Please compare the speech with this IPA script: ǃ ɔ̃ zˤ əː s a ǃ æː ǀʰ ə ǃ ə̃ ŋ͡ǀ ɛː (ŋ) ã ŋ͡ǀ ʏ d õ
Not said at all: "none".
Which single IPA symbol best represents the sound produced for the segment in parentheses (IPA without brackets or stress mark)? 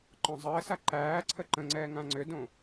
ŋ